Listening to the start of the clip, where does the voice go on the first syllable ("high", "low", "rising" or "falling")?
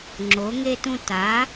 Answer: rising